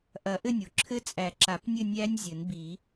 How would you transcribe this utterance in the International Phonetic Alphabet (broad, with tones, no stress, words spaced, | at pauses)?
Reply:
ʔɐ˨˩˦ʔɘ˥˧nʲo˩ ǁʰɘ˦˥t͡sʼæ˨˩˦ǁa˨˩˦pnʲɘ˥˧ nʲæ˦˥nʲ zʲɘ˨˩˦nbi˨˩˦